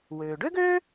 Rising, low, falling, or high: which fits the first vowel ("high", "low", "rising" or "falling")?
low